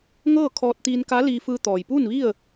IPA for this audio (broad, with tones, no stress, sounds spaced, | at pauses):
ŋ ɤː˥˨ kʰ ɔː˧ t̚ t̪ iː˧ n k a˧˥ l iː˧ f ɯː˧ t̪ ɔː˩ j p uː˥˨ n ʋ i˥˨ ə̯